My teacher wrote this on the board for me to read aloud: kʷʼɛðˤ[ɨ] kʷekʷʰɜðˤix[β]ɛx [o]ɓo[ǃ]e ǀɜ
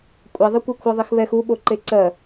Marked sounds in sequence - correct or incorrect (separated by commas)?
correct, correct, incorrect, correct